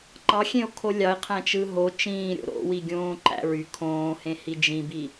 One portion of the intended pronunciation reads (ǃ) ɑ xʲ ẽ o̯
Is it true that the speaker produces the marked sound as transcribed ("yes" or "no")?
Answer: yes